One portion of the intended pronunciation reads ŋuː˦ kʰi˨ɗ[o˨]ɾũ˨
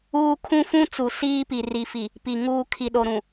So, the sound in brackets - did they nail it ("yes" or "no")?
yes